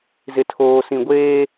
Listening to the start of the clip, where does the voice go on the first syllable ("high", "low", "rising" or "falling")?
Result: low